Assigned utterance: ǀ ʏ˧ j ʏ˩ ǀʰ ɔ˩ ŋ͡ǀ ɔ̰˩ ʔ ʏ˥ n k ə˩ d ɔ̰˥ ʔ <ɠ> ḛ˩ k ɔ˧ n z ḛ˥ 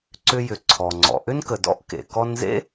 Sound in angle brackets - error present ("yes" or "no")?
yes